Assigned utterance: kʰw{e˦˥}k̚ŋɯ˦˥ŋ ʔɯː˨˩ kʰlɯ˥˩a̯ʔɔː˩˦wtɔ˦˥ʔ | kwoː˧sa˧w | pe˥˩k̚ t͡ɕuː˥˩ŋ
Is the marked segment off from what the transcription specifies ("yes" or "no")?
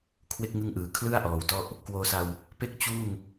no